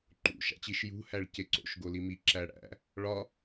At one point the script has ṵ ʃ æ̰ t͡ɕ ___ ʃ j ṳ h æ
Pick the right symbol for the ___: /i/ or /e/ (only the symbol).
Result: i